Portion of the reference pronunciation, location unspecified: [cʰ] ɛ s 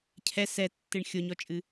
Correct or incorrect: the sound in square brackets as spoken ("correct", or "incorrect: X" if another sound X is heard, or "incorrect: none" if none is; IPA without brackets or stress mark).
correct